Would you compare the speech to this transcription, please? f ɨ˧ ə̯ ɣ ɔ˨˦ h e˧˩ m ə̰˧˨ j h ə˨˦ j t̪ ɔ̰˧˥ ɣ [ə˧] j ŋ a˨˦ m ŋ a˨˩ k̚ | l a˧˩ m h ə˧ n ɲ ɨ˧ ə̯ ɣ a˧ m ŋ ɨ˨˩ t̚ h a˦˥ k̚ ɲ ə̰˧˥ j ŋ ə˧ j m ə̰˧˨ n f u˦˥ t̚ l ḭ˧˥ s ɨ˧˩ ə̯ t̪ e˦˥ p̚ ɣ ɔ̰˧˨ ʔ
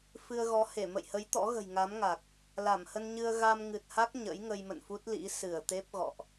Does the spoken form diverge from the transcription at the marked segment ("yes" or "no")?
yes